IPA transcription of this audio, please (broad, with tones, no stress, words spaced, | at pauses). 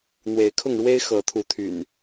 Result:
n̪we˨˦ɪ̯kʰʊ˥˨ŋɻwe˦ɪ̯ xɤ˨˦t̪ʰu˨˦t̪ʰy̰˨˩n